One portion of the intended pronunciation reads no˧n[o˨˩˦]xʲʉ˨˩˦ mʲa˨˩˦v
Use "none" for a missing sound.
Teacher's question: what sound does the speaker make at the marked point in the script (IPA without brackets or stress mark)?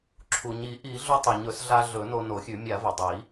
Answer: o˨˩˦